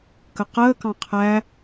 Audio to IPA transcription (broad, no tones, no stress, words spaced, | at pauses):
kəqəːkɑ̃ qʰæ